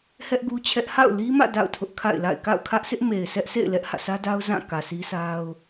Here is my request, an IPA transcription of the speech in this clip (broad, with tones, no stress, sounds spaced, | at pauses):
h ɛ˦ ʔ ɡ u˦ t͡ɕʰ ɛ˦ ʔ h a̰˦˨ ʊ̯ l i˦ m ä̰˦˨ d a̰˦˨ ʊ̯ tʰ ʊ˦ ʔ kʰ a̰˦˨ ɪ̯ l a̰˦˨ ɪ̯ k a̰˦˨ ʊ̯ kʰ ä˦ ʔ sʰ ɪ˦ ʔ m e˨ ɪ̯ s ɛ˦ ʔ s ḛ˦˨ ɪ̯ l ɛ˦ ʔ h ä̰˦˨ s ä˦ d a˦ ʊ̯ z ã˦˨ k ä˨ sʰ i˦ sʰ a˦ ʊ̯